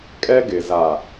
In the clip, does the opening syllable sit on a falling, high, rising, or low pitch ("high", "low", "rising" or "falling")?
high